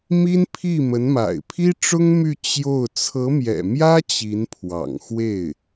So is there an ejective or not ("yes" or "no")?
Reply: no